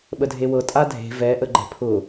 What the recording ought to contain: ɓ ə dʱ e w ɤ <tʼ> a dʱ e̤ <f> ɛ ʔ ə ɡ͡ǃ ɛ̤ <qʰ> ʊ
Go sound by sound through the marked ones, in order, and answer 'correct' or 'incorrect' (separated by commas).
correct, incorrect, incorrect